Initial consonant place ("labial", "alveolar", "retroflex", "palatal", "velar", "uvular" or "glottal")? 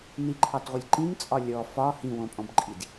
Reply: alveolar